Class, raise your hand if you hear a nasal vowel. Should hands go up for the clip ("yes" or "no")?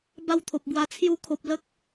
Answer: no